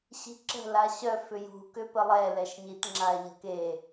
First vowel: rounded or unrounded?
unrounded